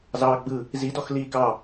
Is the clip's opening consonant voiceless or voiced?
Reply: voiced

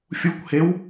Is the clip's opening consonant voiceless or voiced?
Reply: voiceless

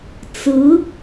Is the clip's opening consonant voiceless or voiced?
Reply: voiceless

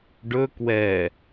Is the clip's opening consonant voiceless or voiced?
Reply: voiced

